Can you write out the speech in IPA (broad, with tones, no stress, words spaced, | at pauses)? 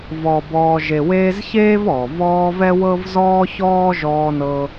vɔː˨bɔː˨ ʒe˨weː˦zçeː˥v ɔ˩ vɔː˦vɛ˥wɤ˥v zɔː˥çɔː˥ ʒɔː˦ nɤ˦